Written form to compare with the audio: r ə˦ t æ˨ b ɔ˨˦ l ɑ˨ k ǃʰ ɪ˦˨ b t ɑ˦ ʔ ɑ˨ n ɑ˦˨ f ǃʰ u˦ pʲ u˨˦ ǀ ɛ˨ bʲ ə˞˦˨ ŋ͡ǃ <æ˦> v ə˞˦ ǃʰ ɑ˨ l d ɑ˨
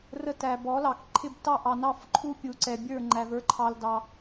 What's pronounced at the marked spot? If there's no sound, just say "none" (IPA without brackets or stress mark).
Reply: æ˨